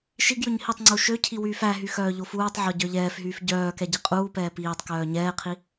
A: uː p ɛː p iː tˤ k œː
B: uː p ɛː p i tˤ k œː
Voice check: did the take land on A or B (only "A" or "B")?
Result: A